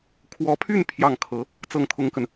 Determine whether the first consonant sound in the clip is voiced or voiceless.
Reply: voiceless